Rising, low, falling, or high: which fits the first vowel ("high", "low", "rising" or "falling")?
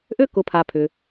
high